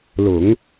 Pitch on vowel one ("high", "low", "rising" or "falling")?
low